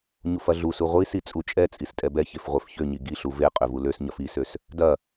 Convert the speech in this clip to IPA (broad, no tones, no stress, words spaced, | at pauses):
ɲufɐɮusu ʁʷisi t͡sʼut͡ʃʼɛt͡sʼis tʼɛbɛçef ʁʷefçøɲi ɡiɬu ve qʼøvuløsɲɐf isøs | dɐ